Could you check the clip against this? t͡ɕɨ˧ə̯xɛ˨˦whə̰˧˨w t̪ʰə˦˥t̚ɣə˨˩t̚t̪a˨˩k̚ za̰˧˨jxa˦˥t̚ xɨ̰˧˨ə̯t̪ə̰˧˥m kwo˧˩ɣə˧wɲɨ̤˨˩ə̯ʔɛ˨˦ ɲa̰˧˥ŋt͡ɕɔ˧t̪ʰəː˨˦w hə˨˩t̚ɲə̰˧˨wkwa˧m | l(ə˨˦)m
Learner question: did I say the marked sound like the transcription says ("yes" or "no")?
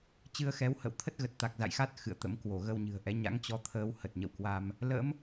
no